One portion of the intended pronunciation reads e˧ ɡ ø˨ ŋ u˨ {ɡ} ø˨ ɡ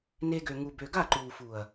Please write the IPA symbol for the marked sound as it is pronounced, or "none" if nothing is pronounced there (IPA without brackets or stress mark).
b